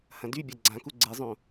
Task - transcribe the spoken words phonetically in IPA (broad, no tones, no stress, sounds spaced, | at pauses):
h ɐ̃ d y bʲ ɐ ɡ͡ǀ ã k u ɡ͡ǀ e zˤ õ